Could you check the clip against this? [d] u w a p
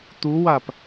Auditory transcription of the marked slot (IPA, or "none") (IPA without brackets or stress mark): t̪